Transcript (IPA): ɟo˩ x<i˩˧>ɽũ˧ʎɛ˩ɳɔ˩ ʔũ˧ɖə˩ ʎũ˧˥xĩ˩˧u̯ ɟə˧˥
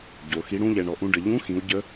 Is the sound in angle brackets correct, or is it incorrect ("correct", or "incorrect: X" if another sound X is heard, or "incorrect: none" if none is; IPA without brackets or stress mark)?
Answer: correct